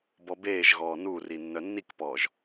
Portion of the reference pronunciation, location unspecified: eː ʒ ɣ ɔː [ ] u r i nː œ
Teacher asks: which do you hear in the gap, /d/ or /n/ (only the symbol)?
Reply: n